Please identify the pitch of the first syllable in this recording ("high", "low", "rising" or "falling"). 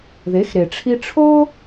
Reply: rising